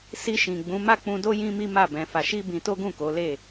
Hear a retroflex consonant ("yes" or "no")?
no